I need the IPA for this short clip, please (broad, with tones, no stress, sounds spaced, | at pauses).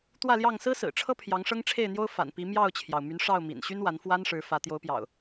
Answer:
t̪ w ä˥˨ l j ɑ˥˨ ŋ s ɹ̩˦ s ɹ̩˨˩ ʈ͡ʂʰ ɤ˦ pʰ j ɑ˨˦ ŋ ʂ ɤ˦ ŋ ʈ͡ʂʰ e˥˨ ɪ̯ n̪ j o˦ ʊ̯ f a̰˨˩ n p i˨˦ m j ɑ˥˨ ʊ̯ t͡ɕʰ j ɑ˩ ʊ̯ m y˨˦ n ʂ ɑ˥˨ ʊ̯ m ḭ˨˩ n ɕ y˦ n w a˨˦ n f w a˦ n ʂ ɻ̩˨˦ f ä˨˦ t̪ j o˨˦ ʊ̯ p j ɑ̰˨˩ ʊ̯